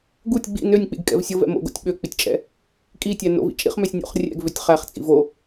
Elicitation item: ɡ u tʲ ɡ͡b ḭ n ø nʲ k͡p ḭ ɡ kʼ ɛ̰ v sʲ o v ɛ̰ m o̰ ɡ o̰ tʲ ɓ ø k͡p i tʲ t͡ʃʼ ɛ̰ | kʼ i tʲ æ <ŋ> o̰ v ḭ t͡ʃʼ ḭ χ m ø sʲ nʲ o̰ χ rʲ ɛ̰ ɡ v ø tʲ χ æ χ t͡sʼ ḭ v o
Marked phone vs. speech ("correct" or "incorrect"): incorrect